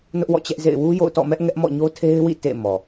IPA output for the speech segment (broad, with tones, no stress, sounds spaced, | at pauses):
n ʊ˦ ʔ w ɔ̰˦˨ t͡ɕ ɛ˦ ʔ z ḛ˦˨ ɪ̯ w u˦ j o̰˦˨ ʊ̯ t ɔ̰˦˨ m ɛ˦ ʔ ŋ ɛ˦ ʔ m ɔ̰˦˨ ɲ o˦ tʰ e˦ ɪ̯ w ḭ˦˨ t ḛ˦˨ m ɔ˨